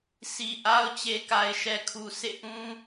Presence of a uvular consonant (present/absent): absent